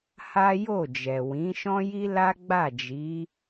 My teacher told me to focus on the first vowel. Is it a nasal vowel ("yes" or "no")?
no